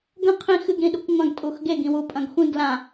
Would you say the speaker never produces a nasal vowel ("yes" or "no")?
no